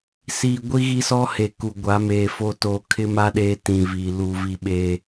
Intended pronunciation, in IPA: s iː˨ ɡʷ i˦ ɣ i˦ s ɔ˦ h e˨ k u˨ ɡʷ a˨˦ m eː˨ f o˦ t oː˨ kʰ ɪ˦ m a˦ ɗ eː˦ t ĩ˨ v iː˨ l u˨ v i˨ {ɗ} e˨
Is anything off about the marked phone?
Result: yes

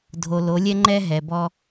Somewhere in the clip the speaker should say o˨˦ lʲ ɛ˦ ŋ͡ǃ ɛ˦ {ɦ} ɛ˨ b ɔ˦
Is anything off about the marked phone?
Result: no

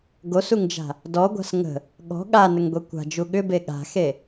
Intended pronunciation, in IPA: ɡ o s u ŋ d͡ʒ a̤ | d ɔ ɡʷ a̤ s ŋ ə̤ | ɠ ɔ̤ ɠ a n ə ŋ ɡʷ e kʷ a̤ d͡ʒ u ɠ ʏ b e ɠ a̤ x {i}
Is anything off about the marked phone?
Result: yes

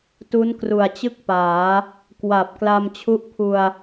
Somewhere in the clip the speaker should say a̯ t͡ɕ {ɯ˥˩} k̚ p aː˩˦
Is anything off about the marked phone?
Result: no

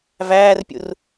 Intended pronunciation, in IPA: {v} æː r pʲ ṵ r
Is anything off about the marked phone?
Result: no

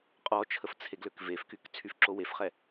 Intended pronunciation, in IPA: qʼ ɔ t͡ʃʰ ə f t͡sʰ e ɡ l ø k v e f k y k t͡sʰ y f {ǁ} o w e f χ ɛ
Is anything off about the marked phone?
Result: no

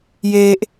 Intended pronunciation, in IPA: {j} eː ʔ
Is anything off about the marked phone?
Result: no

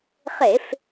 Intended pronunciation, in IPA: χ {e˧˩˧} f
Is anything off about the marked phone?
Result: no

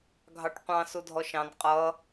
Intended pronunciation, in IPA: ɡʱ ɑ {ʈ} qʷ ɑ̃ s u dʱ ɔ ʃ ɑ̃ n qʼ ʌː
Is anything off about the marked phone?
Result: no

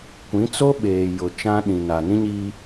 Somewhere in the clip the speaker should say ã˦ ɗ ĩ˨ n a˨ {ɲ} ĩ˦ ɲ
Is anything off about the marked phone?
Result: yes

